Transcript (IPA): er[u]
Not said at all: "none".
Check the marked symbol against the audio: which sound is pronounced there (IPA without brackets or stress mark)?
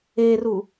u